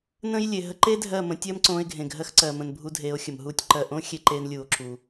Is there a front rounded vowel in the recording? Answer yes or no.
no